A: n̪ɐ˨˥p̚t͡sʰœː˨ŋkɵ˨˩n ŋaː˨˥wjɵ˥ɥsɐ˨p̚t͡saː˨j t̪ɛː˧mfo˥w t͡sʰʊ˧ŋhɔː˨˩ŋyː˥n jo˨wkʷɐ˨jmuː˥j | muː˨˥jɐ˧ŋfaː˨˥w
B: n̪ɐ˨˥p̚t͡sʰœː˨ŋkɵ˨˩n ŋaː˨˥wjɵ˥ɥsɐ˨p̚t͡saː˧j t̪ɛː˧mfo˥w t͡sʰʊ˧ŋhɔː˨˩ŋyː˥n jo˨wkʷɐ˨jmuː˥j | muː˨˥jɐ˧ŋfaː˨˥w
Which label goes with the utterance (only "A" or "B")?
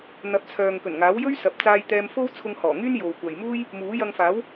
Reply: B